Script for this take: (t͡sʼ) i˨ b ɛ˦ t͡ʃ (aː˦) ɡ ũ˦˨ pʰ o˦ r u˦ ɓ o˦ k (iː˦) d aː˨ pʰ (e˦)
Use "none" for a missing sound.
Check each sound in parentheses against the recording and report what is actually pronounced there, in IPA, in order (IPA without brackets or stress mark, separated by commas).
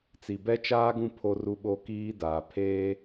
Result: t͡s, aː˦, iː˦, eː˦